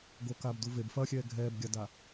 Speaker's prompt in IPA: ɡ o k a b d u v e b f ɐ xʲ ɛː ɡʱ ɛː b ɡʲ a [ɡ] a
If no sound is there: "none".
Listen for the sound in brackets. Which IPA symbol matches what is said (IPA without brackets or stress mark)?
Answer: d